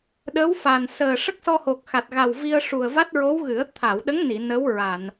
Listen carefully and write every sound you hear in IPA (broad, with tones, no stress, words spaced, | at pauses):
ɗə˧˥wfa˨˩n səː˨˩ ʂə˦˥k̚sɔ˧ho˨˩k̚ xa˨˩t̚ ɣa˨˩wvi˧ə̯ ʂu˨˩ə̯va˦˥t̚ɹo˧˥w ɣɨ˨˩˦ə̯ t̪ʰa˨˩˨wɗə˧˥ŋni˨˩˨ nə˧˥w ɹa˨˩˨n